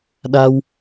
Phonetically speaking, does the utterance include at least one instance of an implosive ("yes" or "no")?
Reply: yes